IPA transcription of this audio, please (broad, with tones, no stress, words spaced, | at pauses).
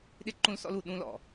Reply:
ɗɪ˦˨ǃũ˦lsɔ̰˦lu˨ ɗũ˦lɔ̰˨